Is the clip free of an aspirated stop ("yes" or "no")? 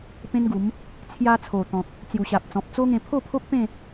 no